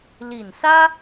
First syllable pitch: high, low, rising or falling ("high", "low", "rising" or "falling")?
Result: low